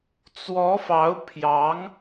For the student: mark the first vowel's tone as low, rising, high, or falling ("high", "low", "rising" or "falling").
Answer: rising